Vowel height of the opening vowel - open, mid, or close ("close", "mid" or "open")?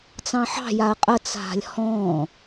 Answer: open